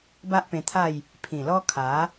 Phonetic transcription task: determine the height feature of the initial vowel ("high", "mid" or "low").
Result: low